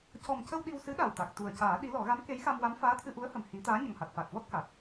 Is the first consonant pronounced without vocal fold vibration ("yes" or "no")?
yes